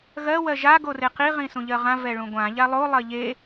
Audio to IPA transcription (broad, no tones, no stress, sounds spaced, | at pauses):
ɣ ɜ w ɜ ʒ a ɡ o r e q i ʁ ĩ s ũ ʎ ɜ ʁ ã v ɛ ɭ ũ ɡʷ ã ʎ a lˠ o lˠ ɜ ʎ e